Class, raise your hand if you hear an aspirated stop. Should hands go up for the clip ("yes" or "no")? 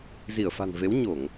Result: no